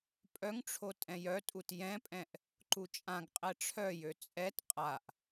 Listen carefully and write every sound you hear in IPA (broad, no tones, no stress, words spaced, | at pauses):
pʼœŋʈ͡ʂʰo tʼɛ̃jœtʼut jɛ̃pʼɛ̃ʔ | ǃut͡ʃʼãɡqʼɛ ʈ͡ʂʰœjø t͡sʼɛt qʼaʔ